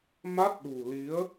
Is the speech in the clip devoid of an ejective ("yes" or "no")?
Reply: yes